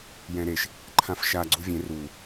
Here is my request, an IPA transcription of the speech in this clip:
j ɛ̃ ɾ e ʃ | ǃʰ ã f ʃ a ɡ͡ǀ u vʲ ẽ r u

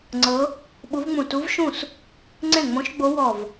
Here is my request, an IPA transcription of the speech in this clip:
ŋ͡ǀ ɤ˧˥ | ɓ u˧˥ v ŋ͡m ũ˧˩ t u˧˥ v ʃ ũ˥˩ s | ŋ͡ǀ ẽ˥˩ ŋ͡m õ˧˥ ʃ ɡ͡b o˧˥ w ɔ˧˩ v

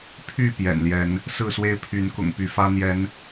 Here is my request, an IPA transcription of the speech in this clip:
pʰ y˥˨ p j ɛ̰˨˩ n l j ɛ˨˦ n | s ɹ̩˥˨ s w e˦ ɪ̯ pʰ y˨˦ n k ʊ̰˨˩ ŋ p y˨˦ f ä˦ n̪ j ɛ˨˦ n

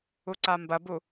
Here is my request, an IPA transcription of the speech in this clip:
u ǀ a m b ɐ b u

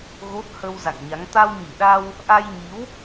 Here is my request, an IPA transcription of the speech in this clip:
ɣ o˦˥ t̚ h ə˧ w z a̰˧˨ ŋ ɲ a˨˦ ŋ t̪ a˧ w ɲ i˧˩ ɗ a˧ w | ʔ a˧ j ɲ i˨˦ w

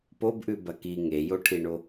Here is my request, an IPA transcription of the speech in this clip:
p o b ʔ ʉ b ɐ k i ŋ e j o ʈʰ i ɳ o

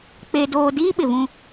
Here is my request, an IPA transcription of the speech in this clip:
k͡p e˦ d oː˦ d iː˦ ɓ ɪ˨ v ũ˦

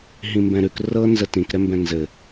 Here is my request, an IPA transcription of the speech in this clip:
ɦ ĩ m b ɛ̃ ɾ ʉ k r ɤ n z ə t ĩ k ɾ ɛ m b ɛ̃ n z ɘ

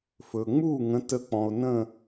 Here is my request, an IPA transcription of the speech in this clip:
f ɵ˩ ŋ͡m u˥˨ ŋ ə̃˨˦ t ə˧˩ k͡p ɔ̃˩ o̯ n ə̃˥˨

